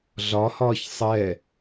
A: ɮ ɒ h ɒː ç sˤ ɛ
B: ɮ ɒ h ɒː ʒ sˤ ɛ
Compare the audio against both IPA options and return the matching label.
A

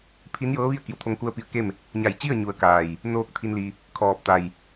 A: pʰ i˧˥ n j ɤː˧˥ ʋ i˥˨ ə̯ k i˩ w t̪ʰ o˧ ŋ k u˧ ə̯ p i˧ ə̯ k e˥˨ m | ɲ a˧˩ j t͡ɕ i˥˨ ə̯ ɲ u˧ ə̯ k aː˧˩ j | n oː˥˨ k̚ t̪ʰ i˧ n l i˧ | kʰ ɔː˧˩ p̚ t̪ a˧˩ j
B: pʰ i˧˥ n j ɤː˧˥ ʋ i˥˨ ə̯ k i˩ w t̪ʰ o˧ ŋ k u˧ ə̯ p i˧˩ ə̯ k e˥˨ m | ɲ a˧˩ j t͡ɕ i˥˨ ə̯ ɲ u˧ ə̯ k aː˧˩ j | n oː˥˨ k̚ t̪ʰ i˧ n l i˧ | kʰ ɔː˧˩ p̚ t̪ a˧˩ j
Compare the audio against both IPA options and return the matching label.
A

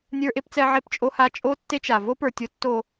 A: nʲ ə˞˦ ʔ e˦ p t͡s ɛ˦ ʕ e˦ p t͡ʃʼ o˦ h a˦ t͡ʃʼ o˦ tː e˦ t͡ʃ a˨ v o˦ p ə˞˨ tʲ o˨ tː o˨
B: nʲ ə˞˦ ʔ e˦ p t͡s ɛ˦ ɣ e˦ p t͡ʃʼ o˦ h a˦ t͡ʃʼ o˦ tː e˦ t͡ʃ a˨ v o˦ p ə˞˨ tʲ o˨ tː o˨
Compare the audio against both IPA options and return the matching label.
A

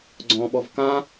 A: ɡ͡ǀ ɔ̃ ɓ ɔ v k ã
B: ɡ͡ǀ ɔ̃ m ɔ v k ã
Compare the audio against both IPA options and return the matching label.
A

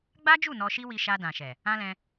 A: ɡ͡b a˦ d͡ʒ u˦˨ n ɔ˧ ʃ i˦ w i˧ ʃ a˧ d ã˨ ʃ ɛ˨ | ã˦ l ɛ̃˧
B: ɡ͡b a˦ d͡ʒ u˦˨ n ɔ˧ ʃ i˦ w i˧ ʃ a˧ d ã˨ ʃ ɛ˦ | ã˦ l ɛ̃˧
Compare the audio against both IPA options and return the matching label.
A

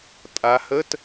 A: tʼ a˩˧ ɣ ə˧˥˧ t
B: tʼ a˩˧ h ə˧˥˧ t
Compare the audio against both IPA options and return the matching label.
B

